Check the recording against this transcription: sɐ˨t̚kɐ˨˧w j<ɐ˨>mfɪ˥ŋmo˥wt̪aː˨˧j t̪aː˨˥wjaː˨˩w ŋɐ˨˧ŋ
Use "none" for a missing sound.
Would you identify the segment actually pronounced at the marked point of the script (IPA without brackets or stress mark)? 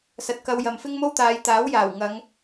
ɐ˨